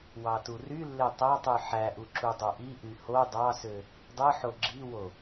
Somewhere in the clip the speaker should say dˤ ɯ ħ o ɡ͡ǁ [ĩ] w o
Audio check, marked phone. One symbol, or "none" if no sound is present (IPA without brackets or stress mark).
i